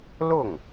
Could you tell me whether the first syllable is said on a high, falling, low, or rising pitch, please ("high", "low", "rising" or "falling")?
falling